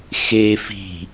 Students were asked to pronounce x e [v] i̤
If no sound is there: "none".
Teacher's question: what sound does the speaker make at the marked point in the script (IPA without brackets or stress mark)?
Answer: f